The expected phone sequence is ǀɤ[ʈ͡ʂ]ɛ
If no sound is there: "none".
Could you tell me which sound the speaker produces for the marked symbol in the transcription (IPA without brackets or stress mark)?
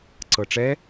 ʈ͡ʂ